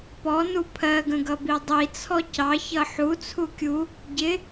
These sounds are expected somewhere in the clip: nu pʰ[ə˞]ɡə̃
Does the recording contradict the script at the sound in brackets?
yes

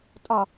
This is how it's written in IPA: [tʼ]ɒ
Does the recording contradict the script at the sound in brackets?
no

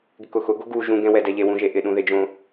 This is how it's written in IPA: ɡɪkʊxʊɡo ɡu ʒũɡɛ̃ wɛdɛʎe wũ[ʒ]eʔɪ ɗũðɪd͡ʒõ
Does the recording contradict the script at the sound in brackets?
no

